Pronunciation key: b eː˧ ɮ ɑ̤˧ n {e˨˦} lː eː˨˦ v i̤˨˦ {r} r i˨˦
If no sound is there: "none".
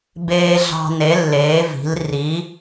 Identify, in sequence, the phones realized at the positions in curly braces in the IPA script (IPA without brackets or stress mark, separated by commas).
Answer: e˨˦, l